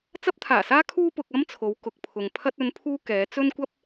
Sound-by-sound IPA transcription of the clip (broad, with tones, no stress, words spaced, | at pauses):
t͡sɐ˧p̚t̪ʰaː˨˩saː˧ kʰuː˥pʊ˧k̚ɐ˥mt͡sʰo˨˧w kʊ˨k̚pʰʊ˨ŋ pʰɐ˧t̚ɵ˨˧npʰuː˧ kɛː˨˧t͡sɵ˥nkʷɐ˥p̚